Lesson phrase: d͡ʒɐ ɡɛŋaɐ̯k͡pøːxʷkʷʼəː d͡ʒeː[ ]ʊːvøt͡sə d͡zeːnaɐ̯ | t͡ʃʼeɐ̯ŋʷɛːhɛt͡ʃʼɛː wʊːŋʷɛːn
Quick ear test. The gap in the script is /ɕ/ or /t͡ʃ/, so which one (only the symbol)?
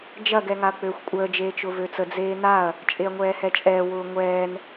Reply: t͡ʃ